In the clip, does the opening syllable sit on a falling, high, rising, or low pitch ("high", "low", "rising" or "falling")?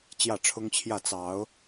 falling